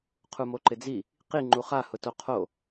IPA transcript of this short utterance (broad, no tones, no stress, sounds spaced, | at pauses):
qʰ u m o ǃ ɪ d͡z i | q i ŋ͡ǃ u χ a h ʊ t o qʰ o